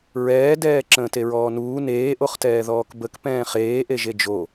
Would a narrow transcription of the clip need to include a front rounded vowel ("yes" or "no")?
no